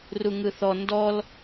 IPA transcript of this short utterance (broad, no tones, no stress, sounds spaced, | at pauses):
r u ŋ ɯ θ ɔ n d ɔ l